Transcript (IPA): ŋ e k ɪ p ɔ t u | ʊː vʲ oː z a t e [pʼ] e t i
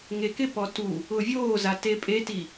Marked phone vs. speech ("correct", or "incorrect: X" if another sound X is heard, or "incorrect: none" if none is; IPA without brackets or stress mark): correct